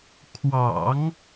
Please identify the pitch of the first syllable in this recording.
low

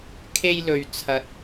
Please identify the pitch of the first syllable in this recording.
high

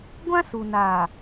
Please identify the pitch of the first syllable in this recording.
high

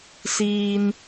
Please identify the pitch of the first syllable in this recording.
high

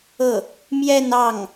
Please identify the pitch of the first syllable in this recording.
falling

